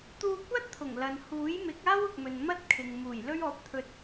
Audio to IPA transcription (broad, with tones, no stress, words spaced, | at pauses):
t̪uː˧kʷɐ˥t̚ t̪ʰʊ˨˩ŋlɐ˨n huː˨˥jmɪ˨˥k̚aː˥w ʊ˨k̚mɵ˨nmɐ˥t̚ kʰɪ˨ŋmuː˨˩jlɵ˥ɥ ɔː˨˥p̚t̪ʰɵ˨t̚